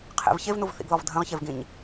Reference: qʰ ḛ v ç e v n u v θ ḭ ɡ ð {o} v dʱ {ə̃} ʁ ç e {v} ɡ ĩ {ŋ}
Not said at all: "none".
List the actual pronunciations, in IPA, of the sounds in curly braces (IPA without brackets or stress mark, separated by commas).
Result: ɔ, ə̃, v, ɲ